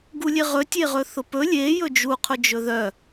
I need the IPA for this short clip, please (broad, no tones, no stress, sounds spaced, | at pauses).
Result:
ɡ u lʲ e ʁ ɵ tʲ e ʁ ɵ θ ʊ p ɵ lʲ e j ɵ d͡ʒ u qʰ ʊ d͡ʒ ɵ ð œ